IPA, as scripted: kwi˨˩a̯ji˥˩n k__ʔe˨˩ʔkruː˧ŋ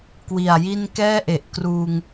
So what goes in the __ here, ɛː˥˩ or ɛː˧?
ɛː˥˩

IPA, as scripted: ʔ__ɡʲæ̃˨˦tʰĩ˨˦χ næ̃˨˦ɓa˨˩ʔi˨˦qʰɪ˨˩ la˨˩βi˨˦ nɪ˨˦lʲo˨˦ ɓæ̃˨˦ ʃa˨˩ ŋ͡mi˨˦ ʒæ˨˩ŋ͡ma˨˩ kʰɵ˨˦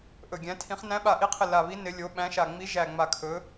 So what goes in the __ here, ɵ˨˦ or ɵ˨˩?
ɵ˨˩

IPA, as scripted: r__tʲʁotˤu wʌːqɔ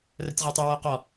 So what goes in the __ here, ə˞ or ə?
ə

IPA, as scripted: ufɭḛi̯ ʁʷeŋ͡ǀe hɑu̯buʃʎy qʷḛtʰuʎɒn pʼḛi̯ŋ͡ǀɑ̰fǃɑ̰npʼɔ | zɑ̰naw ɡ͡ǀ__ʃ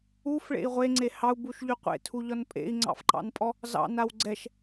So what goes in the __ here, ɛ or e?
ɛ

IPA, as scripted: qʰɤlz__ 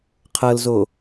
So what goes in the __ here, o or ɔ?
o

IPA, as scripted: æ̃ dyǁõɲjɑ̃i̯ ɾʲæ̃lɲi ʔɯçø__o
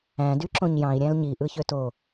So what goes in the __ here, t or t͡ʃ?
t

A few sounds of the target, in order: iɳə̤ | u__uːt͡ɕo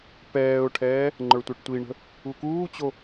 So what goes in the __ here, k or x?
k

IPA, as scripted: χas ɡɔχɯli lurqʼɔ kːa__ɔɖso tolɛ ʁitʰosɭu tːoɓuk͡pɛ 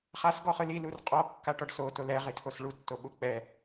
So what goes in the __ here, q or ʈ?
ʈ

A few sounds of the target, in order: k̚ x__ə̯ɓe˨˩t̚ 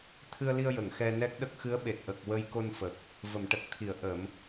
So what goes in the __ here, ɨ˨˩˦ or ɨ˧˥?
ɨ˧˥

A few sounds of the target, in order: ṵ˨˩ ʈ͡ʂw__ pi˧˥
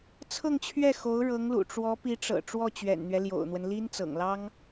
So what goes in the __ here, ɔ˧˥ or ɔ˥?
ɔ˧˥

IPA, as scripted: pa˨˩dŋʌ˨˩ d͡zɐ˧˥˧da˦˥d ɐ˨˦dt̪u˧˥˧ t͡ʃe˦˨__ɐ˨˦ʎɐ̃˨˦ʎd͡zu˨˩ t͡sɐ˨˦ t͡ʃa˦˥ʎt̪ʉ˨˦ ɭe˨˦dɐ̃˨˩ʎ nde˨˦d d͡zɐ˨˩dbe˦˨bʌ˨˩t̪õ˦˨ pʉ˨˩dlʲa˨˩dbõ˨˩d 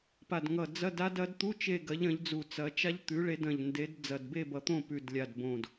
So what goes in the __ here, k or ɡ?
ɡ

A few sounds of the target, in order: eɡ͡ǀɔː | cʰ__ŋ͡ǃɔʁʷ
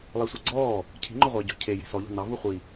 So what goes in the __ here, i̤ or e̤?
i̤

